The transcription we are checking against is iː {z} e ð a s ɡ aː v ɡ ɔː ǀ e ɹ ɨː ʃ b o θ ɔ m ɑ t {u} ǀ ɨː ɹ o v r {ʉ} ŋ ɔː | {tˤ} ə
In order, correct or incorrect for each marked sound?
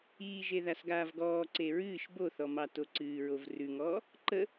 incorrect: ʒ, incorrect: o, correct, incorrect: ǃ

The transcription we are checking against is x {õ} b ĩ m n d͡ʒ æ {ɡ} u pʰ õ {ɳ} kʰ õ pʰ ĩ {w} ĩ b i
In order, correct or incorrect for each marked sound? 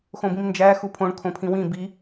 correct, incorrect: x, correct, correct

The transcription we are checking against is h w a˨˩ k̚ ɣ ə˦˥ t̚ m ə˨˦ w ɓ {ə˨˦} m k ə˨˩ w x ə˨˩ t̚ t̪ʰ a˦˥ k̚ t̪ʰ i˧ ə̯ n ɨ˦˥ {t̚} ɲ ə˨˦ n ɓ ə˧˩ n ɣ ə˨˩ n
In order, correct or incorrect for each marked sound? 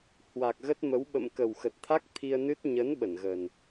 incorrect: ə̰˧˨, correct

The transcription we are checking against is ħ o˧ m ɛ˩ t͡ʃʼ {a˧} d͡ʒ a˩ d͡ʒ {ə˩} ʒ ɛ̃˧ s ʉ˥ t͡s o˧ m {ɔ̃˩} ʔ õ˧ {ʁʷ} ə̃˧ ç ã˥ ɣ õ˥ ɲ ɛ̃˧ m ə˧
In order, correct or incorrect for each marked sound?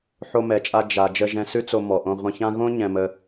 correct, incorrect: ə˧, incorrect: ɔ˩, correct

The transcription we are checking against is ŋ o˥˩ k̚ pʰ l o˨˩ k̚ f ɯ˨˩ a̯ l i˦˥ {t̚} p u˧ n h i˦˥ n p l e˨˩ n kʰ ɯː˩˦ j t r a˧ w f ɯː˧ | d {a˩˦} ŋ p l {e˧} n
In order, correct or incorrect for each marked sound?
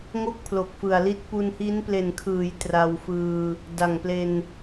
correct, incorrect: a˨˩, correct

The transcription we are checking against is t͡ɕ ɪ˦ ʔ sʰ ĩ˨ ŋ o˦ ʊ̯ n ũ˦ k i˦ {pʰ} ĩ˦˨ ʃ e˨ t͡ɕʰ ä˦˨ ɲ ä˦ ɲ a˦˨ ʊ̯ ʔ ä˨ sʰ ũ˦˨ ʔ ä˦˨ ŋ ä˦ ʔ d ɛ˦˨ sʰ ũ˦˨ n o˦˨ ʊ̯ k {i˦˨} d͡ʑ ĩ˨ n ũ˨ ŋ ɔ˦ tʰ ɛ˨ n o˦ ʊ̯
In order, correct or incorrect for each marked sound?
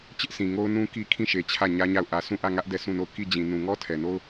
incorrect: kʰ, correct

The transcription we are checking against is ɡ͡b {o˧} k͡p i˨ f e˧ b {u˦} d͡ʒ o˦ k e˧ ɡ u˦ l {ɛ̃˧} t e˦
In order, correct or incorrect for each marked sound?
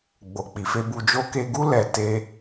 incorrect: o˨, incorrect: u˧, incorrect: ɛ˧

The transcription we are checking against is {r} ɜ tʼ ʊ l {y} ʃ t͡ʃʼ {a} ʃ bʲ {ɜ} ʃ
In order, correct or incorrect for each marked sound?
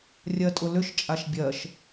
incorrect: rʲ, incorrect: ʏ, correct, correct

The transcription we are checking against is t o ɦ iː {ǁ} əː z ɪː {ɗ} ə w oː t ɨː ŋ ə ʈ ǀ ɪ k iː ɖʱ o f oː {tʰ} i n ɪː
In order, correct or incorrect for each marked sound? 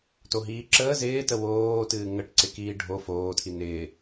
correct, incorrect: t, correct

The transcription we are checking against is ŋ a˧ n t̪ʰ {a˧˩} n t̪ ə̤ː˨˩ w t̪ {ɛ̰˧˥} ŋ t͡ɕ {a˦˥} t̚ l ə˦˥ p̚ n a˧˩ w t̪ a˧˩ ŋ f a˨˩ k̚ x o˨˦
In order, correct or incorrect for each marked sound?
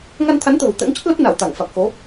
incorrect: a˨˦, correct, incorrect: ə˦˥

